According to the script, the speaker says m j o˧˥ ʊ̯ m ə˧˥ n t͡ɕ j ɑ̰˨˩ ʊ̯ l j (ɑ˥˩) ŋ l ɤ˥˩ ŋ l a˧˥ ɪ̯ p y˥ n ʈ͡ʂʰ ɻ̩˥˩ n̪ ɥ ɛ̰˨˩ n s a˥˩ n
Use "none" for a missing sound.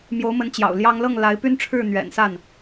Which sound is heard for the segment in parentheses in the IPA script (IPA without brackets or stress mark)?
ɑ˥